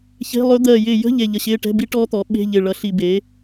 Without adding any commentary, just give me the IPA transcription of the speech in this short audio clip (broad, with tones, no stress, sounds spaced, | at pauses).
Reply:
ç e̤˧˥˧ lˠ ɵ˦˥ d̪ ɜ˧˩ j ɪː˧˩ j ə̤˧˥˧ ʎ e˧˩ ʎ ə˧˩ ɕ ɪː˧˥˧ ʈ ɛ̤˧˥˧ b i˦˥ ʈ ɔː˦˥ t̪ ɔ˩˥ ɓ e̤˧˥˧ ʎ ɪ˧˩ ɭ ʌ˧ ɬ i˧˩ b e˩˥